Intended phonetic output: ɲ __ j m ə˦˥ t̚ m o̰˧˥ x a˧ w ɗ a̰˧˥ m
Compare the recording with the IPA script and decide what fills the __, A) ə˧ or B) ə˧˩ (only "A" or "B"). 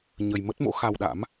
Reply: A